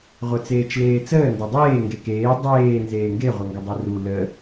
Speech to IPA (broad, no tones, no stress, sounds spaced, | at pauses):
ʁʷ œ t͡s eː t͡ʃ l eː t͡s əː n d ɐ dˤ eː ŋ ɡ e k eː dˤ eː n z eː ŋ ɡ e ʁʷ œ ŋ ɡ ɐ dˤ e r u l ə